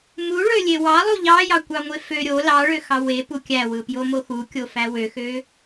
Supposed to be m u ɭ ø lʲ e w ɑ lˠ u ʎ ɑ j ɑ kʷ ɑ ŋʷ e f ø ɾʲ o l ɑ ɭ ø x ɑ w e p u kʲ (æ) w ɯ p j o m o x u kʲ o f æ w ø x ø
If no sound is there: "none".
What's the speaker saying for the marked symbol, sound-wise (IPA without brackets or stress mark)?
æ